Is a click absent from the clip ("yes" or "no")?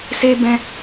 yes